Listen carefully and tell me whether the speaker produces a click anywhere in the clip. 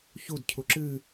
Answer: yes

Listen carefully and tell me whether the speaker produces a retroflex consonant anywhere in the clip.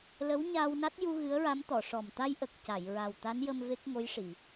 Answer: yes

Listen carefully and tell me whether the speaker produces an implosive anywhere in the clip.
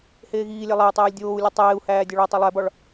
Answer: no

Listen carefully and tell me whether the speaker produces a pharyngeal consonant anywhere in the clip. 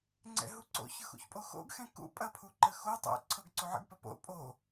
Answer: yes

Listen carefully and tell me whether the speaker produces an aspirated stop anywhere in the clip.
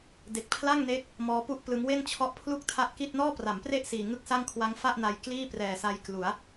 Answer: yes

